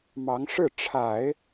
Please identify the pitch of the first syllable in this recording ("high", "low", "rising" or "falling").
rising